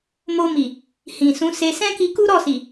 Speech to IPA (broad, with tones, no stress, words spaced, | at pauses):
mo˧mi˨ | hĩ˨sũ˨˦se˧ sɛ̃˦ki˧ku˦ ɾɔ˦˨si˨